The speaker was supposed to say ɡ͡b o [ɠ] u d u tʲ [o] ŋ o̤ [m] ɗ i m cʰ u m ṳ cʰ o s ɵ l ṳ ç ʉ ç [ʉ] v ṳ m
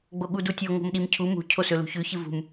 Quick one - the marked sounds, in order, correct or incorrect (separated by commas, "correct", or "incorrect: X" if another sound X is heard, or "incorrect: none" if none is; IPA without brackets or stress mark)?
correct, correct, correct, incorrect: ɨ